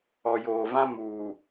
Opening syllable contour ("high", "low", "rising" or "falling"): low